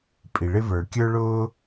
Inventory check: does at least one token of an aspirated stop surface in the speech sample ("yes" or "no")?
no